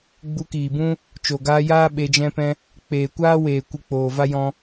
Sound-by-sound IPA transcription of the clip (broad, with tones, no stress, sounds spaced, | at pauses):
ɡ͡b u˧ k iː˨ b ũ˦ | t͡ʃ o˨ ɡ aː˧ j aː˦ ɓ e˧ d͡ʒ ɛ̃˦ p ɛ̃˧ | k͡p eː˨ kʷ aː˦ w eː˨ kʷ ɨ˧ k͡p oː˨ v a˦ j ɔ̃˧